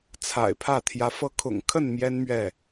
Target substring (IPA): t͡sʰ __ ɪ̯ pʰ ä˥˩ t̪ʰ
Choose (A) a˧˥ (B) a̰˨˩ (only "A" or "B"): B